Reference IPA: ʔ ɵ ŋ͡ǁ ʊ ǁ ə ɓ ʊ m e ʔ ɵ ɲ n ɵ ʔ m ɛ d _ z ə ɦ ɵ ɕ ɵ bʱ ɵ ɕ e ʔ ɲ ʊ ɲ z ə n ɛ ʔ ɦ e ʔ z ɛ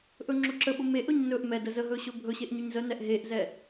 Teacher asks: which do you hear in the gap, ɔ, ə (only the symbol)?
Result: ə